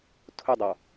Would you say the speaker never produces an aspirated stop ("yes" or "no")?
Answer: no